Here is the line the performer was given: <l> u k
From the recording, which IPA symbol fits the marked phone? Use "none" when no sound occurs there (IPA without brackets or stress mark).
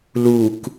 l